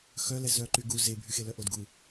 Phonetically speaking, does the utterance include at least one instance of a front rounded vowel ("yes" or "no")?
yes